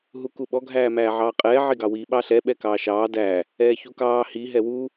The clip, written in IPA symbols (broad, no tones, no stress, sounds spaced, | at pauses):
ɦ u k u ɓ ɔ ɡʱ æː m æː ʕ ɑː qʼ ɛː ʕ i ɡ ɑ w i ɓ ɑ ɬ ɛ ɓ ɛ k ɑː ʃ ɑː d æ | ɛː ç u k ɑː h i ɦ ɛ w u